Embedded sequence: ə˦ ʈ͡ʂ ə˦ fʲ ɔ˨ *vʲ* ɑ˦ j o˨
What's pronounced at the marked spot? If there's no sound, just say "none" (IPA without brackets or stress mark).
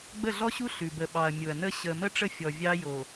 vʲ